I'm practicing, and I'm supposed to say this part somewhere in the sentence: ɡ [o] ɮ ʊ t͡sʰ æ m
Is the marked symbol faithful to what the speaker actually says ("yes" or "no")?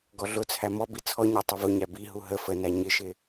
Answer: no